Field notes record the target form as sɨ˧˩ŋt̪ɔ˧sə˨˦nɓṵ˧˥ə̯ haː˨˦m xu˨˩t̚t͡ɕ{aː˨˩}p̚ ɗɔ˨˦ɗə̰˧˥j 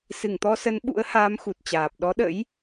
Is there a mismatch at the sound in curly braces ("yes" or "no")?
no